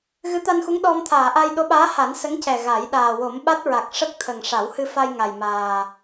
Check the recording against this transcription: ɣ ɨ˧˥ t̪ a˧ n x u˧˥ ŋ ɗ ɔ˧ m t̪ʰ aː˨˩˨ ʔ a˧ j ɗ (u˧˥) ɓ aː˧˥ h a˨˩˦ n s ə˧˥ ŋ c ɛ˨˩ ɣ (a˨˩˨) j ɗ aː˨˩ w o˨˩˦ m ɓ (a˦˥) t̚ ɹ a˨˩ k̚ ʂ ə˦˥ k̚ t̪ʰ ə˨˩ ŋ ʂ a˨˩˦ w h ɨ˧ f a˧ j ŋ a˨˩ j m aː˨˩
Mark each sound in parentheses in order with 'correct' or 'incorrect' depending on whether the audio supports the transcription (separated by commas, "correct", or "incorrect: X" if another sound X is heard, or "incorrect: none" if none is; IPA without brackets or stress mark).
incorrect: o˧˥, incorrect: a˨˩˦, correct